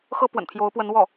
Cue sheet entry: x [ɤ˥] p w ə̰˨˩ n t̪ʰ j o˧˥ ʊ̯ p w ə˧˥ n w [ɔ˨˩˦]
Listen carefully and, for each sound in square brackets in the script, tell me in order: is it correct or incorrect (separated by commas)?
correct, incorrect